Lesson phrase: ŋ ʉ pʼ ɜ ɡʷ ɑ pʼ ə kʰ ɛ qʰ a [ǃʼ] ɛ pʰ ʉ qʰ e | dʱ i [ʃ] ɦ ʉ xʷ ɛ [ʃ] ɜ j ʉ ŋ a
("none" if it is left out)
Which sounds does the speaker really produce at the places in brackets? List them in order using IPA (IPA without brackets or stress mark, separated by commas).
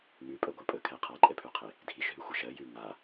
ǃʼ, ʃ, ʃ